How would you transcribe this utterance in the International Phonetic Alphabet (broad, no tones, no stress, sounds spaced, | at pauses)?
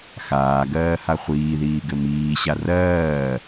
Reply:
x aː ɡ ɜː h a χʷ iː ð iː ɡ ɘ m iː ɕ a r ɜː